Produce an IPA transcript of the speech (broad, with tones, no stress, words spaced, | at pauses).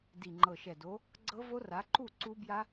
di˨˩ŋ͡ǃɤ˨˩ʃɛ˨˩do˨˦ | ɡ͡ǀɤ˦˥vo˦˥ra˨˦ ǃu˥˨ ǀu˦˥ bja˦˥